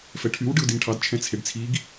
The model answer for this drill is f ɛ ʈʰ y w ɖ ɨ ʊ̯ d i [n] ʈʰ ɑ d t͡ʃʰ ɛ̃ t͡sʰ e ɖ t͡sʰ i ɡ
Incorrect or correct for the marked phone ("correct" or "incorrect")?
correct